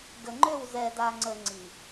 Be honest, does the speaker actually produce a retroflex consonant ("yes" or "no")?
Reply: no